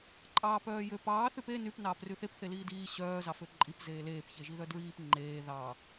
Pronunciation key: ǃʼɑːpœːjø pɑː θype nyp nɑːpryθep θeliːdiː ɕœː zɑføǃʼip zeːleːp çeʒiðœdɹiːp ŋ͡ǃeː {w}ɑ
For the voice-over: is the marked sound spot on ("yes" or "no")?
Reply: no